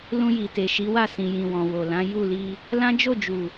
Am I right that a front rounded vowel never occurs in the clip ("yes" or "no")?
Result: yes